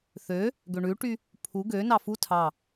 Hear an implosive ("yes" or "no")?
no